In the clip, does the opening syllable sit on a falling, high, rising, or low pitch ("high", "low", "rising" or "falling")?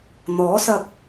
rising